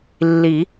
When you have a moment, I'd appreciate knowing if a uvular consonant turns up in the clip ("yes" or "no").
no